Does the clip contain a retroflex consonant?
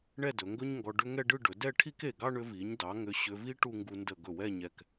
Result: yes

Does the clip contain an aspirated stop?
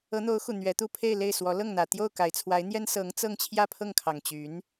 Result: yes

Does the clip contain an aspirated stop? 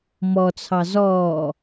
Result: yes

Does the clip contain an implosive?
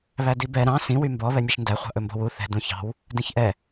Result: no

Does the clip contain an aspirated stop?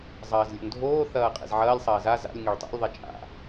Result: no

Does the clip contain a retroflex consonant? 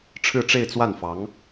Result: yes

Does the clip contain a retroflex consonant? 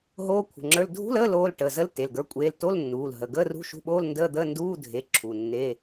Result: yes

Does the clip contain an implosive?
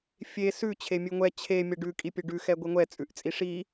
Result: no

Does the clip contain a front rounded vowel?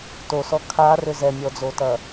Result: yes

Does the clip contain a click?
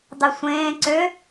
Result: yes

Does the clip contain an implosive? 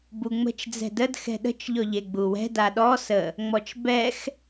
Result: yes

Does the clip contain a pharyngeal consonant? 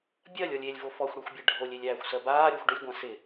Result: no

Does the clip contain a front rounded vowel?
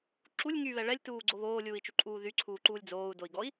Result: yes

